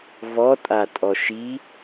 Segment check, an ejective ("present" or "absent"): present